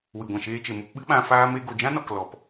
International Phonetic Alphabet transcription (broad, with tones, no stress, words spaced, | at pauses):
wɨ˨ ɡʷã˨ʃeː˧t͡ʃe˨ mu˧pɓɨ˦ɓã˧ faː˦me˦ ɡo˨d͡ʒã˦nɔ˨k lɔ˨p